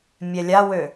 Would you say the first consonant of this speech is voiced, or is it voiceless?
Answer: voiced